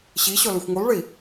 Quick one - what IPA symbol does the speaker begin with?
ɕ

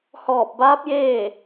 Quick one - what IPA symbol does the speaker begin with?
h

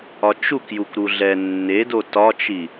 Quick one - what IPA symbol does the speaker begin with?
ɒ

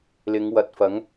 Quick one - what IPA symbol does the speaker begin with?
l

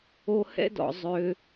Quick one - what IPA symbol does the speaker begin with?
o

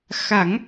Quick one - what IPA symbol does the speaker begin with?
x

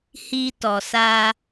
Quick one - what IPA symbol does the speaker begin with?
h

